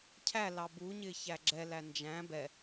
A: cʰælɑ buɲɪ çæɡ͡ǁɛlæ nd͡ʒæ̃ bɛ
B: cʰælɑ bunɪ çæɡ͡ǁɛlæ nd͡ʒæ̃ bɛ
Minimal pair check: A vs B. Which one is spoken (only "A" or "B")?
A